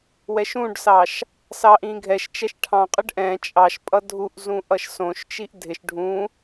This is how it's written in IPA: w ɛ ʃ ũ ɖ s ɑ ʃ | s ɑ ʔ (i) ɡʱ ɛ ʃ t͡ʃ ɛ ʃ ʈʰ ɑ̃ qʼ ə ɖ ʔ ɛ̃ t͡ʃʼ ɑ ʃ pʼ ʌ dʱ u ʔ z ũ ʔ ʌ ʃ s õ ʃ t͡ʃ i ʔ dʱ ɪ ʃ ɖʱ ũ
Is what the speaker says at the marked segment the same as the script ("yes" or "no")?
no